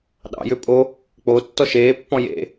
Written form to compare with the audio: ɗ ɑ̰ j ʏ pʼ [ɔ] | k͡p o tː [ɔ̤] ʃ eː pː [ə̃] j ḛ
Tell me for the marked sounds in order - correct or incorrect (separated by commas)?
incorrect, incorrect, incorrect